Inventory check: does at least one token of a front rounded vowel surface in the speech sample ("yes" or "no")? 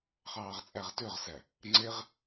yes